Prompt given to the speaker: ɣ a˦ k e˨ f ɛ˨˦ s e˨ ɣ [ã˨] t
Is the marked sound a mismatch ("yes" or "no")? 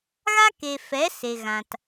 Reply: no